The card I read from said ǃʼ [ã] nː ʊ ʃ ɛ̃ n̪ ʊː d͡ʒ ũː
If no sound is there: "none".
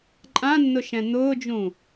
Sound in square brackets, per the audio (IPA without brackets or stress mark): ã